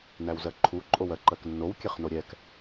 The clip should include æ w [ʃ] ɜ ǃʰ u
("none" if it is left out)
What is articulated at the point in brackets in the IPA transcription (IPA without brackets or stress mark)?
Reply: z